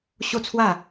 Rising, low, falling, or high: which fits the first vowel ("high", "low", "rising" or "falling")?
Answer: falling